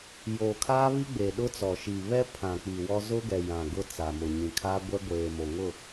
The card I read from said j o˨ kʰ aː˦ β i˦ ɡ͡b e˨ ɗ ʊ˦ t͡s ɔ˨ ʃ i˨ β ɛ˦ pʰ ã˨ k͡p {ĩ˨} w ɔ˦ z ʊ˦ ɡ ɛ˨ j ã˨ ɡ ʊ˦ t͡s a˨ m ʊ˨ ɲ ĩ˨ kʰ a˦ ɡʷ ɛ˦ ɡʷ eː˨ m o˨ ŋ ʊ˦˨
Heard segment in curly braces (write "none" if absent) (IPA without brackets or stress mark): i˨